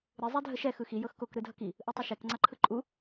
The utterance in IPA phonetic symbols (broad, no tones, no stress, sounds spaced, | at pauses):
ɾ ɨ zˤ ɛ dʱ ə ʃ ɛ x ɯ x i j ɤ x k o k ɾ ɯ dʱ ʌ k i | ʔ ɯ tˤ ʌ ʃ ɛ k ŋ͡ǀ a ǃʰ ɯ ǃʼ u